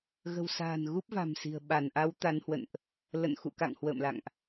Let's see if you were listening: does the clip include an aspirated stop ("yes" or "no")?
no